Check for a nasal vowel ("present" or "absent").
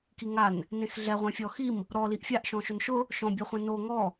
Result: present